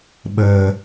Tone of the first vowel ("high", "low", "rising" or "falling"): low